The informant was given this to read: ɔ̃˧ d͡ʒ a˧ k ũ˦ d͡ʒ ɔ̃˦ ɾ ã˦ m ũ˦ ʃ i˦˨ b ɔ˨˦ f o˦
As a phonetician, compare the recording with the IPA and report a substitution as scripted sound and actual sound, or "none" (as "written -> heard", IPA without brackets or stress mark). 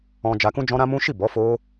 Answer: none